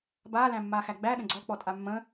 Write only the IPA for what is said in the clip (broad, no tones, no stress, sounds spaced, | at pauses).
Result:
b aː l æ̃ mː aː x æ ɡ͡b æ ɗ ə̃ ɡ͡ǀ ɔ k͡p ɔ tʼ a mː ə̃ː